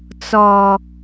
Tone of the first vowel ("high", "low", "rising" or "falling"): low